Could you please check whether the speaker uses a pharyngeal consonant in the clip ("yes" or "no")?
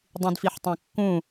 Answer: yes